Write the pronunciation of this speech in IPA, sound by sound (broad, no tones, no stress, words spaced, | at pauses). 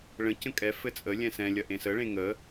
ɭə̃ cə̃kʼɛ fɘt͡sʼə lʲɛ̃sɛ̃ lʲɐʔẽsə ɭẽŋə